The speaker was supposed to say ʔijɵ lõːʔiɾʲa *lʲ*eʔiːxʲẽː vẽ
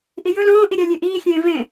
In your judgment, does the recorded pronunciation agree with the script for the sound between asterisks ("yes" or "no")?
yes